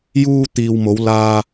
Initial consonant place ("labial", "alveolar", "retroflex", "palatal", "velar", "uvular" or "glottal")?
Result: palatal